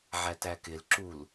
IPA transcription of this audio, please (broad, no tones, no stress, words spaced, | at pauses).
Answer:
ʕætækɪl ǁul